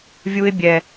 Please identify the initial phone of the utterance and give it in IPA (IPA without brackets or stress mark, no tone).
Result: vʲ